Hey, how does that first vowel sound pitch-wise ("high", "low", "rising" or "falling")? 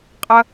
high